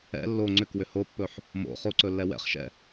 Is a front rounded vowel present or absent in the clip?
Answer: present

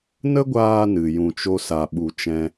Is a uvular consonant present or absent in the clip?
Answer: absent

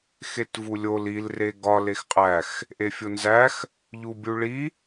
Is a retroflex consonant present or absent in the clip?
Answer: present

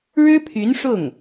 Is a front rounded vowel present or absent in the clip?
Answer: present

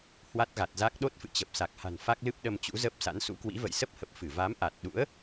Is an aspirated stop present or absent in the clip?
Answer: absent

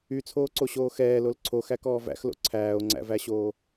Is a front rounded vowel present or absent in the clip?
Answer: present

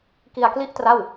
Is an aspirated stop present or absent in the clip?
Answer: absent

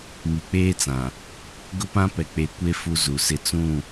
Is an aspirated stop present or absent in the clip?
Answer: absent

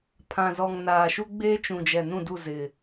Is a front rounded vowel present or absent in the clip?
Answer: absent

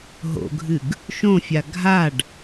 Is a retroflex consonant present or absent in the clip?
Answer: present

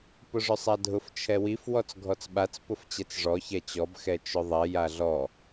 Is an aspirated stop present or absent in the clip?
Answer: present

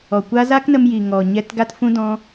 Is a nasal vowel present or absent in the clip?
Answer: present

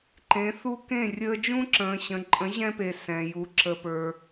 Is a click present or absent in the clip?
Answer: present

